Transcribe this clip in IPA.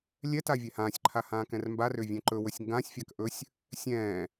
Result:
lʲ ɛ t a vʲ ɛ h ãː sʲ ǃʰ a h ãː k ɛ̃ r m b a r ʏː vʲ ɛ̃ ǃ ɵ w ɵ sʲ ŋ ɡ ã sʲ fʲ a k ʔ ɵ sʲ | sʲ ɛ̃ː

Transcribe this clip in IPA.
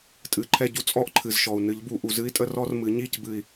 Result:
tʼ ɨ˨˩˦ ǃʰ ɛ˦˨ ɟ u˦˥ t͡sʼ ɔ˦˥ ʔ ǃʰ ɨ˩ z ʃ ɔ˩ u̯ n ɨ˨˩˦ ʎ b u˨˩˦ ʔ u˩ z ɨ˦˥ i̯ tʼ ə˦˥ r ɔ˦˥ r m ɨ˨˩˦ ɲ i˦˨ c b ɨ˦˨ i̯

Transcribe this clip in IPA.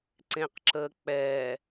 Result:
ǀ ẽ q ǁ əː k͡p ɛ

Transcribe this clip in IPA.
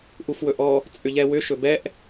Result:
ʔ u f w ɵ ʔ ɔ | t͡sʼ ʏ ʎ ɛ w ʏ ʃ ɵ b ɛ ʔ

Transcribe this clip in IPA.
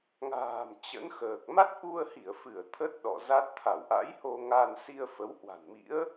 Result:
ŋ a̤ː˨˩ m t͡ɕ ə̰˧˥ n x əː˨˩ k̚ m a˦˥ t̚ ʔ u˧ ə̯ h i˧˩ ə̯ f ɨ˧˩ ə̯ t̪ʰ ə˦˥ t̚ ɗ ɔ̰˧˨ z a˦˥ t̚ t̪ʰ a˧˩ w ʔ a̰˧˥ j h o˧ ŋ a˧ n s i˧ ə̯ f ə˨˦ w h w a̤˨˩ n m ḭ˧˥ ə̯

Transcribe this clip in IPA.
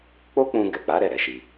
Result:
k͡p o˦ k͡p ũ˧ ɡ ɛ˨ k͡p a˨˦ ɾ ɛ˦˨ ɾ ɛ˨˦ ʃ i˧

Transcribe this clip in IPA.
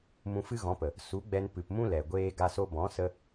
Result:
m ũ˧ f ɨ˦ ɣ ɔ̃˨˦ p ə˨ | s u˨˦ ɡ͡b ɛ˧ n p ɨ˨ p m ũ˦ l ɛ˨ ɡʷ eː˦ ɡ a˧ s o˧ b ɔ̃˨˦ s ə˦

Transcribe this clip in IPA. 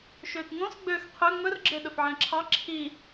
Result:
ʃ øː t ŋ õ s ɡ͡b øː x qʰ ø ŋ͡m ɵ r ɡ͡ǁ e ɗ ɵ f ʕ æ̃ ǁʰ ɑ ǁʰ i

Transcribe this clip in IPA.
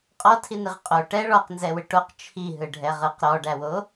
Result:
qʼ ɔ tʰ i n i ʁ qʼ o ʈ ɛ ɭ ɔ q n z ɛ w ɯ ʈ o q t͡ʃʰ i ɦ ɯ ɖʱ ɛ ʁ ɯ q ɾ ɔ ɖ æ w o

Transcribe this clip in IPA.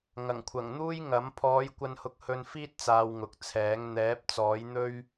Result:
ŋ ɐ˨˩ ŋ kʷʰ ɐ˨˩ ŋ n̪ uː˥ j ŋ ɐ˨˥ m pʰ ɔː˨˧ j kʷ ɐ˧ n h ʊ˧ k̚ h ɵ˧ n f iː˥ t̚ t͡s aː˧ w ŋ ʊ˨ k̚ t͡sʰ ɛː˨˥ ŋ n̪ ɛː˨˥ p̚ t͡s ɔː˨˥ j n̪ ɵ˥ ɥ

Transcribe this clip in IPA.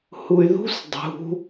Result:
h u y̯ ð ṳ s dˤ ṳ

